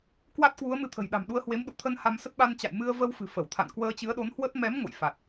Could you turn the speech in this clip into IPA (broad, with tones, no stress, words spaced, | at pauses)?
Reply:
kwa˦˥t̚kwu˨˦ə̯ mɨ˧t̪ʰə̤˨˩j ɗa̤˨˩mɗu˧ə̯hwe˨˦m ɗṵ˧˨t̪ʰə˧n ha˧msə˦˥t̚ ɓa˧nt͡ɕa̰˧˨j mɨ˧ə̯və˧w fɨ̤˨˩fə˧˩wt̪ʰa̰˧˨n kwəː˧t͡ɕɨ˨˦ə̯ɗo˨˦nhwə˦˥t̚ mɛ˨˦m ŋo̰˧˨jfa˨˩t̚